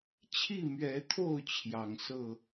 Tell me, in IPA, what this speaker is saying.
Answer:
t͡ɕʰi˥˨mɥɛ˨˦t̪ʰo˥˨ʊ̯ t͡ɕʰjɑ˨˩ŋsɤ˥˨

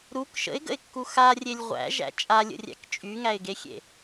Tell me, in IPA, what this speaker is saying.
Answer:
ɾuk ʃə̰ɪ̯ɡə̰ɪ̯kːu xarʲelʲ ʁʷæ̰ʒæ̰ t͡ʃʼalʲə̰rʲæ̰k t͡ʃʼyŋæɪ̯ɡexʲḛ

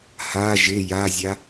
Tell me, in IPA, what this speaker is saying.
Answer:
ha ʒɪ jazʲa

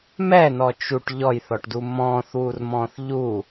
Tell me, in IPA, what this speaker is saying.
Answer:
mɛnɔ t͡ʃuʈ ʎɔjθɔʈdu mɔ̃ːθwurmɔ̃ːθ ʎu

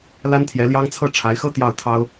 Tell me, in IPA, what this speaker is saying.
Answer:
la˥nt̪ʰjɛ˧˥ljɑ˥ŋ t͡sʰɤ˥˩ʈ͡ʂʰa˧˥ɪ̯xɤ˥ t̪jɑ˥˩ʊ̯t̪ʰɑ˥ʊ̯

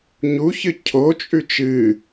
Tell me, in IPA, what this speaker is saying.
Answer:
ɲuçɨ cʰot͡ʃʼʉ t͡ʃɨ

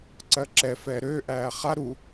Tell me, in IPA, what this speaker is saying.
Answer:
ǀɜǁɛ fɛːɾøː ʔæːχa ɾu

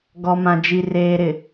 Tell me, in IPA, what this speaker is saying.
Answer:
ɡɔ˨mã˨ d͡ʒi˨reː˨ɾɪ˨

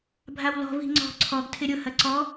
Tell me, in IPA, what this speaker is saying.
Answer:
bʱawlɔ̤ vi̤ŋ͡ǀɔ̤ ǀʰɔɡ tʰɪɾʲʊ hɐǀɔ

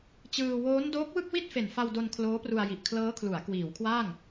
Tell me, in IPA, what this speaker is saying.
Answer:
t͡ɕɯː˧ woː˦˥n doː˦˥k̚wɯ˥˩k̚wi˥˩t̚ fe˨˩nfa˧wdo˧n kʰloː˦˥pru˧a̯ji˨˩ʔ kʰlɤː˦˥kʰlu˩˦a̯ kwiː˩˦wkʰwaː˥˩ŋ

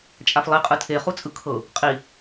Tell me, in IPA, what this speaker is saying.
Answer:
t͡ʃʼaflˠi qʼɯtʰe χut͡sʼɯkʰɤ | qʼi

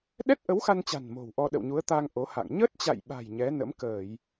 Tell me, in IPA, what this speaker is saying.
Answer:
ɗɛ˦˥t̚ʔə˨˦wxa˧nt͡ɕa̤˨˩n mo̤˨˩wʔɔ˧ ɗə̰˧˨wɲu˨˦ə̯t̪a˧ŋ ʔo˨˦ha̰˧˨ŋ ɲə˦˥t̚t͡ɕa̰˧˨jɓa̤˨˩j ɲɛ˨˦nə̰˧˥mkəː˧˩˨j

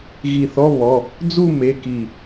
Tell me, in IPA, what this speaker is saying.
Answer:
ɣi˧˩θɔ˧˥˧βɔ˩˧˩ | d͡zu˥˧me˩˧˩ ki˧˩

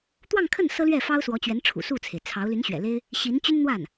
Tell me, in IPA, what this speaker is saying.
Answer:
t̪wɑ˥˧ŋkʰə˥˩n sɤ˥lɥɛ˥˩fɑ˥ʊ̯ swɔ˧˥t͡ɕɥɛ˧˥n ʈ͡ʂʰṵ˨˩ su˥˩t͡sʰe˩ɪ̯ t͡sʰɑ˧˥ʊ̯ ly˧˥nɕɥɛ̰˨˩le˥ɪ̯ | ɕi˧˥nt͡ɕy˥nn̪wa˥˩n

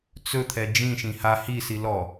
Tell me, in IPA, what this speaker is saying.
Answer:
t͡sɵt̪ʰɛ d͡ʒĩʃĩ ha hisi lɔ

